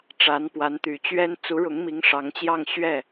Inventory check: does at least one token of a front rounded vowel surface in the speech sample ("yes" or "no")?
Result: yes